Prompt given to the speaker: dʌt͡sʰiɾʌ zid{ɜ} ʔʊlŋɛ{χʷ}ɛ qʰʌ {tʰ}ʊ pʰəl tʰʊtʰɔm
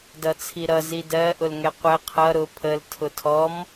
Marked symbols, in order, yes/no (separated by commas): yes, no, no